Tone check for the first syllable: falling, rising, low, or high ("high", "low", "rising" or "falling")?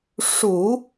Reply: low